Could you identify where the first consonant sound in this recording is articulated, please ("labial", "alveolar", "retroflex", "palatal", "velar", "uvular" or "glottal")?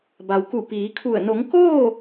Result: labial